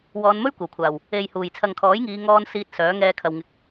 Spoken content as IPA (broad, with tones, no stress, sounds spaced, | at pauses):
w ɔː˨˧ n m ɵ˥ ɥ kʷ ɐ˨˩ w kʷʰ aː˨˩ w | e˨ j h uː˨˩ j t͡sʰ ɐ˨ ŋ kʰ ɔː˨˥ j ŋ iː˨˧ ŋ ɔː˧ n s iː˧ t̚ s œː˨˥ ŋ ɛː˧ kʰ ɐ˨ w ŋ ɪ˨ k̚